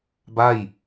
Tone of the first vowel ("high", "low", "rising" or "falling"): falling